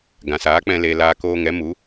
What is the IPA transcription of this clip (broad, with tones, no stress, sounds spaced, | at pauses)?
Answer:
ɡ ã˨ s aː˨˦ k͡p ɛ̃˧ l e˧ l aː˧ k oː˧ ŋ ɛ˨˦ m u˨˦